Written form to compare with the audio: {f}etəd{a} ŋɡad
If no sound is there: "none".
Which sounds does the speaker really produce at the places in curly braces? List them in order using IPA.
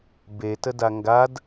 b, a

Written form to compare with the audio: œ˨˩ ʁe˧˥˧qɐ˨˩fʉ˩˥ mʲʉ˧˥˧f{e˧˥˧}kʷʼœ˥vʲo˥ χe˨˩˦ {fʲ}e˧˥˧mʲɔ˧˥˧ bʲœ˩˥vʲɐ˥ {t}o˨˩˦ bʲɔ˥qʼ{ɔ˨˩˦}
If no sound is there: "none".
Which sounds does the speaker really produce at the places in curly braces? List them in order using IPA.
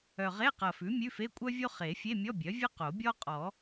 e˧˥˧, fʲ, q, ɔ˨˩˦

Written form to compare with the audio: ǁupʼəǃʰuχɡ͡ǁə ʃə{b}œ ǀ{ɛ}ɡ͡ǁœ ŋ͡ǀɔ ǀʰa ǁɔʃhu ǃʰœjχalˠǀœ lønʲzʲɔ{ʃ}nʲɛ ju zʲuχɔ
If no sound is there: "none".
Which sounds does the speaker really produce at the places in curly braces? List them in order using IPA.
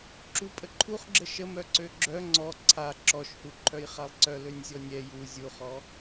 m, ø, none

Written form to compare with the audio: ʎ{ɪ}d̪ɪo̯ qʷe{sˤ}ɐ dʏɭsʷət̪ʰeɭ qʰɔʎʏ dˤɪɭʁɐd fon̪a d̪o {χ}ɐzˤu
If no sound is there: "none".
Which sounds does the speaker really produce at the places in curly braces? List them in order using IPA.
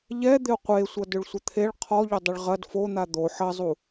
ɛ, sʷ, ħ

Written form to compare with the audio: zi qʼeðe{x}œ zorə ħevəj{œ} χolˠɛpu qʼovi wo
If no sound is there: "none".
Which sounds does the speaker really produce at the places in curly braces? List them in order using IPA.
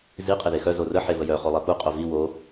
x, œ

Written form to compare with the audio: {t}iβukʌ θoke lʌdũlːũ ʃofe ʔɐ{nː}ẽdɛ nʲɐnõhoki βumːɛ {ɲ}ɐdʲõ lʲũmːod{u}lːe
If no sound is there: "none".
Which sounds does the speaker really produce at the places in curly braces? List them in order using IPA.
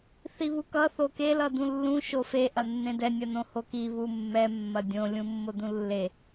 θ, nː, mː, ũ

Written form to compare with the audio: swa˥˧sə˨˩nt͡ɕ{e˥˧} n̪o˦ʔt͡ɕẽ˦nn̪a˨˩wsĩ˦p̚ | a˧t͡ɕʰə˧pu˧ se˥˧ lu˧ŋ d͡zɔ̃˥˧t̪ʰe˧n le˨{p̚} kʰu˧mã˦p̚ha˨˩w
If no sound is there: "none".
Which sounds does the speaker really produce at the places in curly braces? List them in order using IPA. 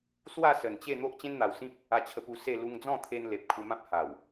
e˥˧, p̚

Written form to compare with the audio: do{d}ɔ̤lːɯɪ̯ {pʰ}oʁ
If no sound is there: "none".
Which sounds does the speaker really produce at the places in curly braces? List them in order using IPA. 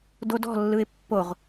d, pː

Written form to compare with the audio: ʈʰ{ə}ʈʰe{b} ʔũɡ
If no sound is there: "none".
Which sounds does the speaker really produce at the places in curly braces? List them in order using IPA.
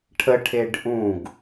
ə, ɖ

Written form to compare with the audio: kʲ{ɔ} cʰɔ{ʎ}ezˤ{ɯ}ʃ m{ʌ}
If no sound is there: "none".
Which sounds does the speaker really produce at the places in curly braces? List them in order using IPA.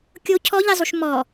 o, ʎ, u, ɔ

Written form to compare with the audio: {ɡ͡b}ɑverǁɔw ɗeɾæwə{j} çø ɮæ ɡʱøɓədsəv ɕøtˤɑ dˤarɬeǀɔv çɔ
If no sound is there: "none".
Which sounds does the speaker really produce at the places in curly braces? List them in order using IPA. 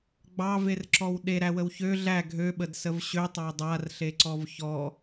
ɡ͡b, w

